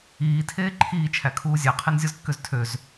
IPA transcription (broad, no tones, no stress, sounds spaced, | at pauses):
iː tʰ eː ǃʰ iː t͡ʃʰ æ kʰ uː zʲ æ qʰ e n zʲ o z kː ø z tʰ ø z